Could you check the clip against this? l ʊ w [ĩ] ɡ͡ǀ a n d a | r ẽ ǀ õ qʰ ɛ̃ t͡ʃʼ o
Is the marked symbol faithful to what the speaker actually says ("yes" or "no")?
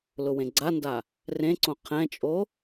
no